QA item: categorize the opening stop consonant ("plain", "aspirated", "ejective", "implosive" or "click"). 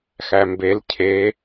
plain